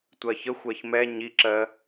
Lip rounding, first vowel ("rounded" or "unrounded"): unrounded